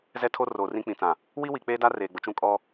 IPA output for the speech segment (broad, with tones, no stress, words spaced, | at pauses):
zɛ˦tʰo˦ roː˨rĩ˦k͡pĩ˨t͡sã˨ | wi˦wi˨k͡peː˦da˦ reː˨ɡ͡bʊ˨t͡ʃũ˦ kʼɔ˦